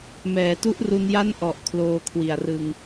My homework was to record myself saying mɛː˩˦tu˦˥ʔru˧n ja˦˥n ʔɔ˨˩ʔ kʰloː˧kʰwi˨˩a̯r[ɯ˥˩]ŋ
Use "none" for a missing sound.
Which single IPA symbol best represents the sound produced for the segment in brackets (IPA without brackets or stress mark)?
ɯ˧